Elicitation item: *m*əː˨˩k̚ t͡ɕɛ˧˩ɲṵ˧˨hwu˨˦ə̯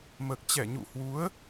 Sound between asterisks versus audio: correct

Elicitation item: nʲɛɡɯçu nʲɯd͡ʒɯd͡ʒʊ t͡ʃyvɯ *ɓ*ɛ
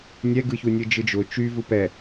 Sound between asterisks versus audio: incorrect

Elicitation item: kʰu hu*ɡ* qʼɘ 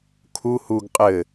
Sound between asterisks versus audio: correct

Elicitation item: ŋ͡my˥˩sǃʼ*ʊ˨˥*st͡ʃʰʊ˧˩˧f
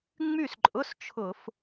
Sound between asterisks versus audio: incorrect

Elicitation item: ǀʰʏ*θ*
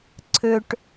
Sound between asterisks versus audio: incorrect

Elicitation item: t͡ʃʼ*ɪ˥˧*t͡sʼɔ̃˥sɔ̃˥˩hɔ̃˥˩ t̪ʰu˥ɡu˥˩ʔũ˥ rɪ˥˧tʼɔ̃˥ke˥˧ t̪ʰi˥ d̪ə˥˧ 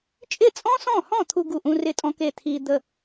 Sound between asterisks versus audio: incorrect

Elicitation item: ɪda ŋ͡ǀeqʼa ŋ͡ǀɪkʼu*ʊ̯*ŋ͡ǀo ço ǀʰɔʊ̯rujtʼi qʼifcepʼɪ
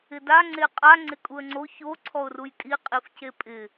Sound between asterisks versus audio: incorrect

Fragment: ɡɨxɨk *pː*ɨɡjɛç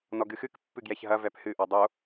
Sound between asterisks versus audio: correct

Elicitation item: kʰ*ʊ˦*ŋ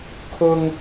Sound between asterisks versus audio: correct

